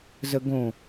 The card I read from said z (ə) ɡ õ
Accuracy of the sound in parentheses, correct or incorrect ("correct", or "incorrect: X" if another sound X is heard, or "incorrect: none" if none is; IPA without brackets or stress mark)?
correct